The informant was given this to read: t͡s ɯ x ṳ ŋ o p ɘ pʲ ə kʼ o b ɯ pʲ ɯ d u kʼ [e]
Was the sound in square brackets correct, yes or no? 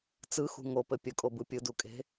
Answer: no